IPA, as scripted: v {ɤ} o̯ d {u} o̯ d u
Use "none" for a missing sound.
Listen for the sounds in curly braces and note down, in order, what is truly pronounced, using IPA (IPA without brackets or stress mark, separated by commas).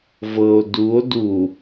ɤ, u